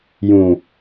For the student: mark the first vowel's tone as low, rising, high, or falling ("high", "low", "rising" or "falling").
low